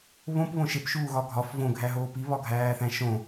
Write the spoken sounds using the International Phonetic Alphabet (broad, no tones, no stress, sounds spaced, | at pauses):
β õ p β õ ʃ e p ʃ uː ɣ ɒ ɡʱ ɒ f v õ ɡʱ æ ɦ oː p i β ɒ ɡʱ æː θ æ̃ ʃ õ